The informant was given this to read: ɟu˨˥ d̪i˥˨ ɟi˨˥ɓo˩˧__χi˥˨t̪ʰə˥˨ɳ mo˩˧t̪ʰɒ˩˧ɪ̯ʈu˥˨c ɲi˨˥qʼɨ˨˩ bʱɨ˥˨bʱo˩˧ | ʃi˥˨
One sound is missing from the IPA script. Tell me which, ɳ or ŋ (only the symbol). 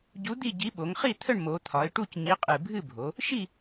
ŋ